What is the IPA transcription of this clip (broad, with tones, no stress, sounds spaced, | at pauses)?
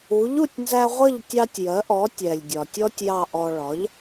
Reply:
u˩˥ ʎ u˥˩ tʲ n z æ˧ ʁʷ ʌ˥˩ ʎ tʲ ɑ˧ tʲ j ɜ˩˥ ʔ ɔ˩˥ tʲ ɛ˩ lʲ dʲ ɒ˩ tʲ ɔ˧ tʲ j ɑ˥˩ ʔ ɔ˧ ɭ ɒ˩˥ ʎ